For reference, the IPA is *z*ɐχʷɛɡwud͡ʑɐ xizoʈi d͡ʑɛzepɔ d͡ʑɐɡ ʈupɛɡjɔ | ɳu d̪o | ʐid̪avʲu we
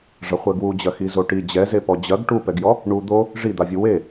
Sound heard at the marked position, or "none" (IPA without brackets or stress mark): ʐ